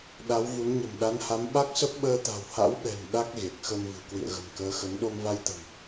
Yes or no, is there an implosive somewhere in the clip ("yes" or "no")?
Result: yes